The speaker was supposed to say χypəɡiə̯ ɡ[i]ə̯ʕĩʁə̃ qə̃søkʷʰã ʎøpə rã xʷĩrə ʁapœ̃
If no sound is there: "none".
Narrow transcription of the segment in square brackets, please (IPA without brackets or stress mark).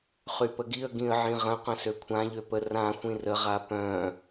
ĩ